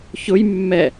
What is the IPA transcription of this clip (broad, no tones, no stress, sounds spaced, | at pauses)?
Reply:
ç ʊ j mː ɛ